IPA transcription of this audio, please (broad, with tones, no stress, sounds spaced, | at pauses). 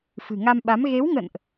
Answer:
f ɨ̤˨˩ ŋ a˧ m ɓ a˨˦ m ɣ e˨˦ w ŋ ə̰˧˨ n ʔ